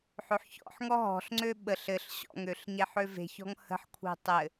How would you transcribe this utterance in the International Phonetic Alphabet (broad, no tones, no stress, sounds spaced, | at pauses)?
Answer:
ħ ø ħ ç ɔ̰ ħ ŋ ɔ ɦ ɔ̤ ɬ ŋ͡ǀ ø ɓ ə ɬ ɘ ɬ ɕ ɔ̰ ŋ ø ɬ ɲ e ħ ø v e̤ ç ɔ̤ ŋ h ə̤ ħ kʷʰ e̤ tˤ ɘ